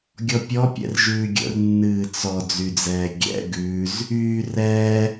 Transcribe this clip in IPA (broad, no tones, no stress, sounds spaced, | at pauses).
ɡʲ ɔ pʲ ɔ pʲ ɛ̰ r ʒ ʉː ɡʲ ə̰ r nː ɨː t͡s ɔ d͡z y d͡z ɛː ɡʲ ɛ̰ ɡ ʉː z | yː r ɛː